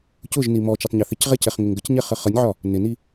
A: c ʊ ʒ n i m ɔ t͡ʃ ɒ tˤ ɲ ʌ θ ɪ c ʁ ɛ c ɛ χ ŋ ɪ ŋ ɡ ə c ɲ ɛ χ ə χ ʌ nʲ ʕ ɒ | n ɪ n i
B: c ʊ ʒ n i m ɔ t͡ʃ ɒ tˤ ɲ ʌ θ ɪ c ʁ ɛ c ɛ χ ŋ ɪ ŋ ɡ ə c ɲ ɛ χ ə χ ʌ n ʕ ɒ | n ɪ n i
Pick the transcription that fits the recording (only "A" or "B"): A